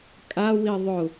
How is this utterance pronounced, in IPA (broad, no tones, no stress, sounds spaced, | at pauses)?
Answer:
kʼ a w i ðˤ ʊ